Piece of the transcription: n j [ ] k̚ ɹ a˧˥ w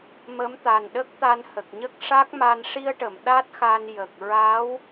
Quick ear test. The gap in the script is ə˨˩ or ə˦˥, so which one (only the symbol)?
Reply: ə˨˩